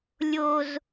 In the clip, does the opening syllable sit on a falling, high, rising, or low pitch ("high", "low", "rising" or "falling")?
high